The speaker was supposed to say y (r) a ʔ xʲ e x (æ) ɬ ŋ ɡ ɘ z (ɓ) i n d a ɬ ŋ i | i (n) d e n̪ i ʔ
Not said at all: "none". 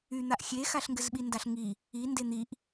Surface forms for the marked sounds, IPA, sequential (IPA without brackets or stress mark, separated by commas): n̪, a, ɓ, n